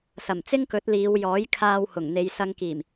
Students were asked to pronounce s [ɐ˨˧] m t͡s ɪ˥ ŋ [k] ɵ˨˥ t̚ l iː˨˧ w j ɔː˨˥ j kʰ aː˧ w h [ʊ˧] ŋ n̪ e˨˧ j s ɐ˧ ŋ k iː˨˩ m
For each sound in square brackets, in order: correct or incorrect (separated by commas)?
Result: incorrect, correct, incorrect